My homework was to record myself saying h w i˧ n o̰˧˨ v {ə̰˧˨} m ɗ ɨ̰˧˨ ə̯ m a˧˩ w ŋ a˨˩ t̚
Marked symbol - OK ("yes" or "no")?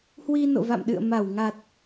no